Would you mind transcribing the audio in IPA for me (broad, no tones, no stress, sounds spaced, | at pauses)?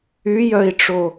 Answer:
y j œ i̯ ʈ͡ʂ o